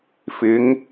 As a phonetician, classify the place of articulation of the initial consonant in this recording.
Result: labial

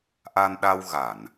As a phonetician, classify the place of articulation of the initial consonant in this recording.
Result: glottal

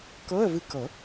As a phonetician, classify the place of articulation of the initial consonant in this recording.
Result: velar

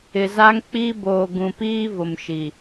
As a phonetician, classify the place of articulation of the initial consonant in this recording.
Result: alveolar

